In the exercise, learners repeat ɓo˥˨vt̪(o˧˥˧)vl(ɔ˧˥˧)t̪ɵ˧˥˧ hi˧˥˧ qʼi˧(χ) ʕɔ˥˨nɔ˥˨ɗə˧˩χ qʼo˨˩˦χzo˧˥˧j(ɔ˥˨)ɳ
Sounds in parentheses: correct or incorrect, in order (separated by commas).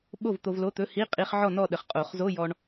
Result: incorrect, incorrect, correct, incorrect